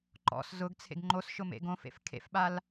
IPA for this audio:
ǃɔ̰s zʊɡt͡sʰḛɡ ŋ͡ǃosʃʊmḛ ɡõfḛf kʰḛfɓal

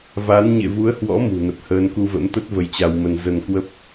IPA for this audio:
va˨˦n ɲḛ˧˨vu˨˦ə̯hwɔ̰˧˥ mṳ˨˩nə˨˩p̚həː˧n ku˧və̰˧˥mt̪ə˦˥t̚ və˧jt͡ɕa˧wmə˧n zə˧nkwə˦˥p̚

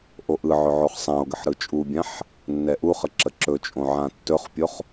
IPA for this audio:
ʔoʔɯʕɵ ʕoχsˤão̯ɡəħ ɾɯt͡ʃʼubʲãħ | nːɛʔuχə ǁəǁɵt͡ʃʼõ ʕãtːɵχpʲoχ

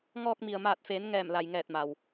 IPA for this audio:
ŋɔː˧k̚mi˩ə̯maː˧˩t̚feː˩˧n ŋɛː˧˩mla˩jŋɛː˧˩t̚ma˩w

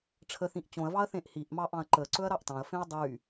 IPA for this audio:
ʈ͡ʂʰəθĩʔ t͡ɕõɐ̯vɑɐ̯θẽʔ hiʔmɑʔɑ̃ɐ̯ ǃəǀɵɐ̯ɾɑʔ tɑ̃ɐ̯fẽɐ̯ dˤy

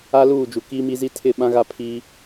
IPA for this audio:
a˦luː˦˨d͡ʒu˨ kiː˦mi˦zi˦ tʰɪ˦˨ɓã˦ɣa˦ pʰiː˦

